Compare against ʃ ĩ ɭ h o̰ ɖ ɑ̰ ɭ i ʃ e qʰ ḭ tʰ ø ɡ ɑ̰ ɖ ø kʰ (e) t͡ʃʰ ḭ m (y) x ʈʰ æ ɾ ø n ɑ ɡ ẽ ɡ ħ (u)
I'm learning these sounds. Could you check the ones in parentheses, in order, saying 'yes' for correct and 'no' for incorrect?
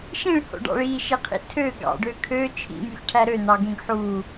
no, yes, no

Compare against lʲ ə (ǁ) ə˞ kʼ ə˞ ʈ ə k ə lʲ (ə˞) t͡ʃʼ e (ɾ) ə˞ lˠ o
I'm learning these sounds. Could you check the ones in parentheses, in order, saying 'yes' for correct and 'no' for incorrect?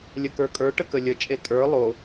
no, no, no

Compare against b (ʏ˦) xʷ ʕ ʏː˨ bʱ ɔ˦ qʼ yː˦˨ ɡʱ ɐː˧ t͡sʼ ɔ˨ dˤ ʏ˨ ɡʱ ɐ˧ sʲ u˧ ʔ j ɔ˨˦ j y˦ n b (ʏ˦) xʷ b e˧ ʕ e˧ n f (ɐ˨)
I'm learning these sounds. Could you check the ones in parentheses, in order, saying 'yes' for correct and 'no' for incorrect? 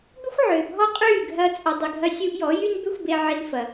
yes, yes, yes

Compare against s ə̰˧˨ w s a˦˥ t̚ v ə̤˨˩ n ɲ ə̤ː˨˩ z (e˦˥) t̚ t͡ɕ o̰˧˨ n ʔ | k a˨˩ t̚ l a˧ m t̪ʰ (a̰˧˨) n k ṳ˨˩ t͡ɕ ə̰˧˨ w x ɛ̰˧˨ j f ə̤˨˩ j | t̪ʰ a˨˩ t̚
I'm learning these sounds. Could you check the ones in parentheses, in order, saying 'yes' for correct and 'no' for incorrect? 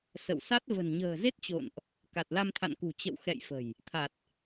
yes, yes

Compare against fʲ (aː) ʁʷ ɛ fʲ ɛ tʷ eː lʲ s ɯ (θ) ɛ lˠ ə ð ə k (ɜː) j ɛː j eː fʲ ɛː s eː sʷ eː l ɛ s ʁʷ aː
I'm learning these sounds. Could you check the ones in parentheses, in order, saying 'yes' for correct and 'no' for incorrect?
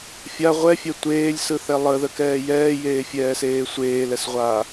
no, yes, no

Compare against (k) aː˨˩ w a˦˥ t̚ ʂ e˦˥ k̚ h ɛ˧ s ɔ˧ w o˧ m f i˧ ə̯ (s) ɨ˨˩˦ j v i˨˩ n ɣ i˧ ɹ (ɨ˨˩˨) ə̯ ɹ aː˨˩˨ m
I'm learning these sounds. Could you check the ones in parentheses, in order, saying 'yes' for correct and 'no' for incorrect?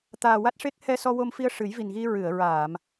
no, no, yes

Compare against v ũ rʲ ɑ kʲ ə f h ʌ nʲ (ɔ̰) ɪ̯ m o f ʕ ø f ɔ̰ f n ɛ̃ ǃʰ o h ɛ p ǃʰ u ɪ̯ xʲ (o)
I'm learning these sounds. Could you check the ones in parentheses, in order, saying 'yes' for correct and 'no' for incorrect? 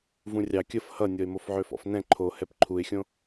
no, no

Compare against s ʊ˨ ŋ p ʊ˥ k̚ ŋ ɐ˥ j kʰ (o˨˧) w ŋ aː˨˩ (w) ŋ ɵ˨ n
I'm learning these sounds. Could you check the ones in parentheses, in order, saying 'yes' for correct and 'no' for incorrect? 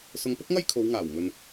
yes, yes

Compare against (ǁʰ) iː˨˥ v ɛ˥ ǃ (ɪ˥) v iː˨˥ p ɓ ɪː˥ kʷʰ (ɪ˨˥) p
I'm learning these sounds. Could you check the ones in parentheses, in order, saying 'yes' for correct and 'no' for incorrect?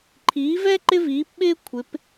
no, yes, yes

